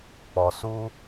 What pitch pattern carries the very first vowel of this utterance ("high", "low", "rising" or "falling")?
low